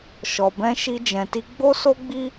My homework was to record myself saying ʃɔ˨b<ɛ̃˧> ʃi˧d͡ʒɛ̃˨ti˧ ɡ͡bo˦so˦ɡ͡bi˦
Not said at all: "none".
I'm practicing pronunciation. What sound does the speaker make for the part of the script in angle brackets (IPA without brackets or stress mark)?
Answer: ɛ̃˧